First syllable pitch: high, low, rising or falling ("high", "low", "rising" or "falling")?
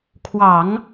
low